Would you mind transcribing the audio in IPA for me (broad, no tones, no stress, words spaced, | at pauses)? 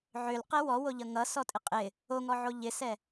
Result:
ʕølqɛ wɔwoʎʌ ŋʌsɔtʼɪ qʼɪ | oŋɔʕo ʎɪsɛ